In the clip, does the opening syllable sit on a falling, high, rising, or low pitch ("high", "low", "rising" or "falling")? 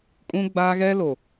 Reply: high